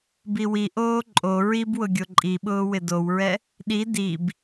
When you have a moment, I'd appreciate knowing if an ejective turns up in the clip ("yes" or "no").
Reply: yes